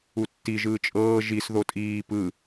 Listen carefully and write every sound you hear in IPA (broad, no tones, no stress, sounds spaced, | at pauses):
u tː i ʒ ɯː t͡ʃʼ ɤː ʒ i s ð o tʼ iː p ɯ